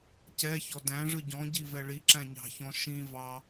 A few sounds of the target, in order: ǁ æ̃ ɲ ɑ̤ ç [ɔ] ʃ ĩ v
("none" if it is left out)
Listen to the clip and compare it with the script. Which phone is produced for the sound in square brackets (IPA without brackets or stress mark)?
ɔ̃